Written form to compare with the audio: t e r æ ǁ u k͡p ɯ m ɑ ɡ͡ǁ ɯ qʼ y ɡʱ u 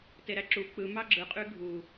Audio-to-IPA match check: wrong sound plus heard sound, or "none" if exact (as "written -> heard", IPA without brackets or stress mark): r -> ɾ